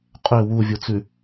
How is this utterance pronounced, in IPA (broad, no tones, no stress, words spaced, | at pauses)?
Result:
qʼø wuvʲut͡sʉ